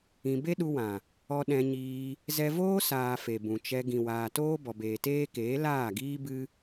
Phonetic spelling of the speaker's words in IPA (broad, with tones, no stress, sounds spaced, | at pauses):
ĩ˧ b e˦ ɗ u˧ w ã˨ | ɔ˧ ɗ ɛ̃˧ ɲ iː˧ | z ɛ˧ v oː˦ s aː˨ f e˨ b ũ˨ t͡ʃ ɛ˧ ɡ ĩ˨ w aː˨ t oː˦ b ɔ˨ b eː˨ t eː˦ k eː˨˦ l aː˦˨ ɡ iː˦ b ɨ˦